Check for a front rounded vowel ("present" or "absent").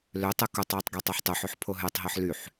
present